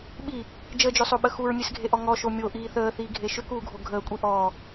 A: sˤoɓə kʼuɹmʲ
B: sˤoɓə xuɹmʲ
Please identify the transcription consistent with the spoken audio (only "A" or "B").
B